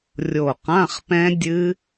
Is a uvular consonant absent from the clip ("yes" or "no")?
no